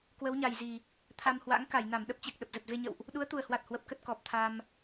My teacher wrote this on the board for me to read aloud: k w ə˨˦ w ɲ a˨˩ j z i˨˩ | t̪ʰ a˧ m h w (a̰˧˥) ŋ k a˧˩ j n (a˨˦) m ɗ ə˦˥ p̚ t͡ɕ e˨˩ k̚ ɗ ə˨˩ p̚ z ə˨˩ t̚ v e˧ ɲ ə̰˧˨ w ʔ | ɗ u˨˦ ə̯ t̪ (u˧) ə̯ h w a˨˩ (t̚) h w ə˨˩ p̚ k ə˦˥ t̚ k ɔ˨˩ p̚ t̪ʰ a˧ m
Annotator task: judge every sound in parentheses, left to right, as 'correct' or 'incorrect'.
correct, incorrect: a˧˩, incorrect: u˨˩, correct

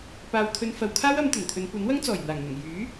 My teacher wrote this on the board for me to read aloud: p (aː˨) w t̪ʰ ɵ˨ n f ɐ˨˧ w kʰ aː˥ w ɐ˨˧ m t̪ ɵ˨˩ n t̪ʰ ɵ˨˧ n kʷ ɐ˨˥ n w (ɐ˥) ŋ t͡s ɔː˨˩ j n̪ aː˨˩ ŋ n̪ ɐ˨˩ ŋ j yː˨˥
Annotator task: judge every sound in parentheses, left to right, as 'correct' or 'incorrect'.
correct, correct

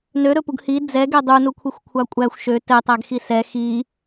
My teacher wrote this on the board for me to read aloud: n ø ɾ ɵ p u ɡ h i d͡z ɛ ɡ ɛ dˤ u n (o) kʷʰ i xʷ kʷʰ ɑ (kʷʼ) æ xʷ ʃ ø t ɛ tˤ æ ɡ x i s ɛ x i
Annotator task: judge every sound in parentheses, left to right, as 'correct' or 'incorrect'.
incorrect: u, correct

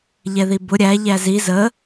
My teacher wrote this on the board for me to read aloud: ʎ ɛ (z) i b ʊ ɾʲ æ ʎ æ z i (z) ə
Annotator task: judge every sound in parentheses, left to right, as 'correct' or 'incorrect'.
incorrect: ð, correct

